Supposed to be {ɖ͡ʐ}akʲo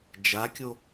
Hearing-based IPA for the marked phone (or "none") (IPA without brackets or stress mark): d͡ʒ